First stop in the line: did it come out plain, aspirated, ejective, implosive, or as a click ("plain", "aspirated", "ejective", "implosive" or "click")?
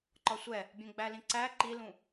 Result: click